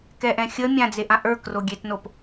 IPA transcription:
k ɛ ʔ ɛ̃ xʲ ə mʲ ã d͡z e ʔ ã ʔ ə˞ k r o ɡʲ e t n o p

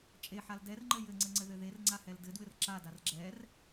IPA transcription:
t͡ʃʼ e ħ a l d ɛ r ŋ͡ǃ ɘ j ɘ ŋ͡ǀ ɘ ŋ͡ǀ ɘ ð ɘ ð e r ŋ͡ǀ a h ɛ l d ɘ d w ɘ r ǁ a d a r ɡ͡ǁ ɛ r

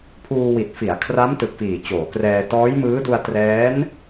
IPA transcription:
pʰ uː˧ w i˨˩ t̚ f i˩˦ a̯ kʰ r a˦˥ m t ɯ˨˩ k̚ f iː˨˩ t͡ɕ oː˩˦ k r ɛː˧ t ɔː˦˥ j m ɯː˦˥ d u˧ a̯ t r ɛː˦˥ n

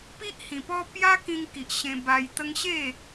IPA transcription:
p i˦ ʔ h ĩ˨˩ p ɔ˦ p j a˦ k ĩ˧ ŋ k i˨ ʔ ɕ ẽ˧ b a˧ j t̪ ə˦ ŋ ɕ e˥˧

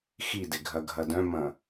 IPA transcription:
x i d ɪ ɡʱ ɐ ɡʱ ɐ d œ̃ m ɐ̃

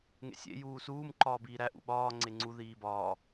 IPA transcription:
ŋ ḛ sʲ ḛ j uː s uː m ǃ ɒː b iː ɾ æ ʔ ṵ ɓ ɒː ŋ͡ǀ e ŋ͡ǀ u ð iː b ɒː

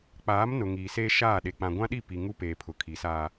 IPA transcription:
k͡p aː˨˦ m n ʊ˨ ŋ iː˨ s eː˦ ʃ aː˦˨ ɗ e˨ k͡p ã˨ ɡʷ ã˦ ɗ i˦˨ p i˨ ŋ u˦ p eː˨ pʰ ʊ˨ kʰ i˨˦ s aː˦

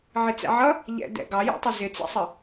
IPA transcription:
ʕ ɪ t͡s ɛ̰ ʕ ʌ | ʎ ɛ̰ d ɛ̰ ɡ ɑ j ɛ̰ tˤ ə z ɪ t͡s ɛ̰ sˤ ə

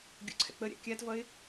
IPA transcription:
ɡʲ o̰ ǀʰ ɛ̰ k͡p ə ɾʲ a̰ kʲ a t v ʌ ɪ̯

